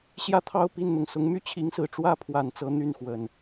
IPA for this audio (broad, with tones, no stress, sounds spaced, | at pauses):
ɕ j ä˥˨ t̪ʰ ɑ˥˨ ʊ̯ p i˥˨ n n̪ ʊ˩ ŋ s ʊ˨˦ ŋ m y˦ t͡ɕʰ i˨˦ ŋ s ɹ̩˨˩ ʈ͡ʂ w ä˦ pʰ w a˨˩ n t͡s ɤ˨˦ n̪ y˥˨ n x w ə˨˩ n